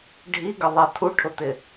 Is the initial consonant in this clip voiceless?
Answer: no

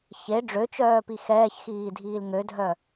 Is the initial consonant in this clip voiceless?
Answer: yes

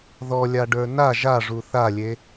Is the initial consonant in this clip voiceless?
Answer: no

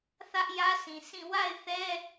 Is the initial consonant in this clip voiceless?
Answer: yes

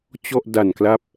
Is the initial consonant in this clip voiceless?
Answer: yes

